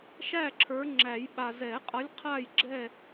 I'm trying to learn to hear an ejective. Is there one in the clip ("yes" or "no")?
yes